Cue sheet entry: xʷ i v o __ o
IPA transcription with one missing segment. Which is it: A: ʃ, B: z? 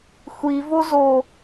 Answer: B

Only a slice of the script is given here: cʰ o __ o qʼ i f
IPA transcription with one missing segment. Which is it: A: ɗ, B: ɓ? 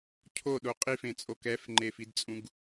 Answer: A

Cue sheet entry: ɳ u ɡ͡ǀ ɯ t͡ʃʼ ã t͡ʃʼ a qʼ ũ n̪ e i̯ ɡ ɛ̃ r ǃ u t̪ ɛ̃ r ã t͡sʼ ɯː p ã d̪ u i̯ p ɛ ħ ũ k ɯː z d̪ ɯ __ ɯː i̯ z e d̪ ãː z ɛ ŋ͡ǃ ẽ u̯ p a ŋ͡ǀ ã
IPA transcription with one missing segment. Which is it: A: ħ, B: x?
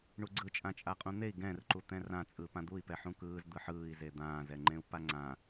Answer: A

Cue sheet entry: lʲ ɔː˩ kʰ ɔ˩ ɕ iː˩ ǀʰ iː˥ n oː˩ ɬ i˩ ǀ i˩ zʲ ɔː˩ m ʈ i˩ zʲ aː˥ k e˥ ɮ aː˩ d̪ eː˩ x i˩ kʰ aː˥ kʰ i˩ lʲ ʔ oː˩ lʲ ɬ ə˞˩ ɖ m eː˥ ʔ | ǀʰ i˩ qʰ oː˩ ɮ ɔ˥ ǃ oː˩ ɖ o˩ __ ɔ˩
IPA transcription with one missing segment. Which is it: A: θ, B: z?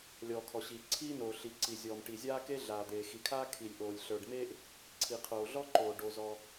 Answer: B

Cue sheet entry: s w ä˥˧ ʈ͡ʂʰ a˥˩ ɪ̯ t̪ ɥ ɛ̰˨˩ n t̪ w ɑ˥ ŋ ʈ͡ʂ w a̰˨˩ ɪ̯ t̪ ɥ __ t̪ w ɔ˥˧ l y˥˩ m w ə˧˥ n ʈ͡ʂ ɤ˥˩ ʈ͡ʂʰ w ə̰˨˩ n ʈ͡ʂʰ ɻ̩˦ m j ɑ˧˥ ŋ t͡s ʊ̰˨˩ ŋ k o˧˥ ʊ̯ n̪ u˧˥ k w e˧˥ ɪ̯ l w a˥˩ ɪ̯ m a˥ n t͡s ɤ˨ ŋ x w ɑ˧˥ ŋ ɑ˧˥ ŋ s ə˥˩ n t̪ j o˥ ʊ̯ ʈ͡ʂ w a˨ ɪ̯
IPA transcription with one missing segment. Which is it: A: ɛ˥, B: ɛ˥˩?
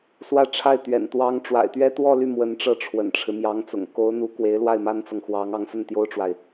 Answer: A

